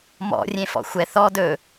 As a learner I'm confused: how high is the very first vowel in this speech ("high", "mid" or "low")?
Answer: mid